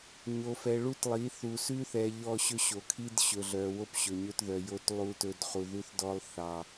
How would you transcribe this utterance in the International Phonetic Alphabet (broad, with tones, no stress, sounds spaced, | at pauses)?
ɲ o˨ f ɛ˨ ɭ u˦ t lˠ i˨˦ θ u˨ s ʉ˦ θ ɛ˨ ʎ ɔ˦˨ ɕ ɵ˦ ɕ o˨ kʰ i˦ d ɕ ɵ˨ ɮ œ˨ w o˦ p ɕ ɵ˨ ɲ ɵ˦ t ð œ˨ j o˦ t lˠ u˦ t ɵ˦ d χ u˨ ð ʉ˦ θ d ɔ˦ lˠ θ ɑ˦